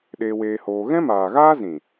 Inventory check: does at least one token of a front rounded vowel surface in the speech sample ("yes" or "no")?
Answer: no